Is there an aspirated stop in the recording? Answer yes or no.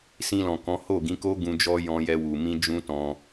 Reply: no